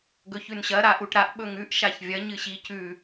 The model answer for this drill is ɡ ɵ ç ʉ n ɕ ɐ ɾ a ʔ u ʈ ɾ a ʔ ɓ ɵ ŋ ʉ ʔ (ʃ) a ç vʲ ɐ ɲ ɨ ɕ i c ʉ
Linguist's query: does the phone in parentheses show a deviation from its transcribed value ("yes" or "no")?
no